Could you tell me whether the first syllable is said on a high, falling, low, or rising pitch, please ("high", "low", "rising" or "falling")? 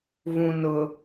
low